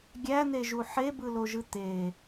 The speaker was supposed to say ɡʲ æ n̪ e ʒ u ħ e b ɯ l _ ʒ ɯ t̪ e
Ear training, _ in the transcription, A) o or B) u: A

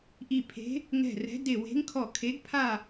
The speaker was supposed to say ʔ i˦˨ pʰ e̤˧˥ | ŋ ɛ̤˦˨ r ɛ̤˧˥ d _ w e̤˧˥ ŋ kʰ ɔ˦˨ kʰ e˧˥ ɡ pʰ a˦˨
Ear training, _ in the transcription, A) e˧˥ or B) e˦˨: B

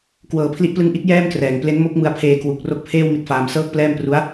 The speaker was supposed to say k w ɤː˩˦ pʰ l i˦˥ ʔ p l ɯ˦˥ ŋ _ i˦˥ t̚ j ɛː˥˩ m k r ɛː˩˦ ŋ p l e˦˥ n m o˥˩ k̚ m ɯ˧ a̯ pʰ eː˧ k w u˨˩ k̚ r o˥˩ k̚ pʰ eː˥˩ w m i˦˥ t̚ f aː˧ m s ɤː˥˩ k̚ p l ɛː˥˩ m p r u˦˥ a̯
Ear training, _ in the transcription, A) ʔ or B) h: A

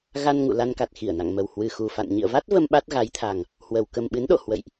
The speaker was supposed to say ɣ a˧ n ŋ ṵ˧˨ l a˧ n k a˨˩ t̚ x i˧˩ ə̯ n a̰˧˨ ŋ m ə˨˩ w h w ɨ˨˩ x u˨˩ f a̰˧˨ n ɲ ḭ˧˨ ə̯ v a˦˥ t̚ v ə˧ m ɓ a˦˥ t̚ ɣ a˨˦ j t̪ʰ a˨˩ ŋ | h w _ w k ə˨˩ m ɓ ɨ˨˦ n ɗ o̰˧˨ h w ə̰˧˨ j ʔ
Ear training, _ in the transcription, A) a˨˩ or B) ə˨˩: B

